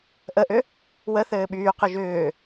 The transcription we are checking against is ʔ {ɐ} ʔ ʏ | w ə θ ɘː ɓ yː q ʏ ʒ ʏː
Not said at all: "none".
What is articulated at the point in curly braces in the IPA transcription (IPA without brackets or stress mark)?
ə